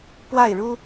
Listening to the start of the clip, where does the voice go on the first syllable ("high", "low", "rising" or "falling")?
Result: falling